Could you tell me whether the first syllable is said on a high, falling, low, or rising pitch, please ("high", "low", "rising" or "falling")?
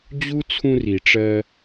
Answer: high